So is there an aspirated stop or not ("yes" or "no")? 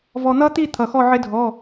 yes